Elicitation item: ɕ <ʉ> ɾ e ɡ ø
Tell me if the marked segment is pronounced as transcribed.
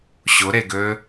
no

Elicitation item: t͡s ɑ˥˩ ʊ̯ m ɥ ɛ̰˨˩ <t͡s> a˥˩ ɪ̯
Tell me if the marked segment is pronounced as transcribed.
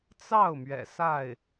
no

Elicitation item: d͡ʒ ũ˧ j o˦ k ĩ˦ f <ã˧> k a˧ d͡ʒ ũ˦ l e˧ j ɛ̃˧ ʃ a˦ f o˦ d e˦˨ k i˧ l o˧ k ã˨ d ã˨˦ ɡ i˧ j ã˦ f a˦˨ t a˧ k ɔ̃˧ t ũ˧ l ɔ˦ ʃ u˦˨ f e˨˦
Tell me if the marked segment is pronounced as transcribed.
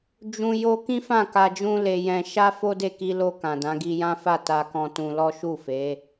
no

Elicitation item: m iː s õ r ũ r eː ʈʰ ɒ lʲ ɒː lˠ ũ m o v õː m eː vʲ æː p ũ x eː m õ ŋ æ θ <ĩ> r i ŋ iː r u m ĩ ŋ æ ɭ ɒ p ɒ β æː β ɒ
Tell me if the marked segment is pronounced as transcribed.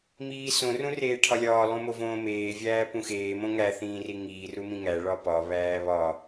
no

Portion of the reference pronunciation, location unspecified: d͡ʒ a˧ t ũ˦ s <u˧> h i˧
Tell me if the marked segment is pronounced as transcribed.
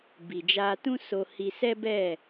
no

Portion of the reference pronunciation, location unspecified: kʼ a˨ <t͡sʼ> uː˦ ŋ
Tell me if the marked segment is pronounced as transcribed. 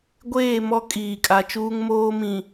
no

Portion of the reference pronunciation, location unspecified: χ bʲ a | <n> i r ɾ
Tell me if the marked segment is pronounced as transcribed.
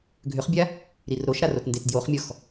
no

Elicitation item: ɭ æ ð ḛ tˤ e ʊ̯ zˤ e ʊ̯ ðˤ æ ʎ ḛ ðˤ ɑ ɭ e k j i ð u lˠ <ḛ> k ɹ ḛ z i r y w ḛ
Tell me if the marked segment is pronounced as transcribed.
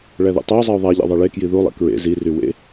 yes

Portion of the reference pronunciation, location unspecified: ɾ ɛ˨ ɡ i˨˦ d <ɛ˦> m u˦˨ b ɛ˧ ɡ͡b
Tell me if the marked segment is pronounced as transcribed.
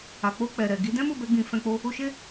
no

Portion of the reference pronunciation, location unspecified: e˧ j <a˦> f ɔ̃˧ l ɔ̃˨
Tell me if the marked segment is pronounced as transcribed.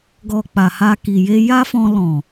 yes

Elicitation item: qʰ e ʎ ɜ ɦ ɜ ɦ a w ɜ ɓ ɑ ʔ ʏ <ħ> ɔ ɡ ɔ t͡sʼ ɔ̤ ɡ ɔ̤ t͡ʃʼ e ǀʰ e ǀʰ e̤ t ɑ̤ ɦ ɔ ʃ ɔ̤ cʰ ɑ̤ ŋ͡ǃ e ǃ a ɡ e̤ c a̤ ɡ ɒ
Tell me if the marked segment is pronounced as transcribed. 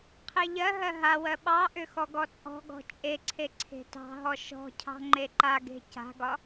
no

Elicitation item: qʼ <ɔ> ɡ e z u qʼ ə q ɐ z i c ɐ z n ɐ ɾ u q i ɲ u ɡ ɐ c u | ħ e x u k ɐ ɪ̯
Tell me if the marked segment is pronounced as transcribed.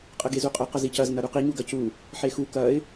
no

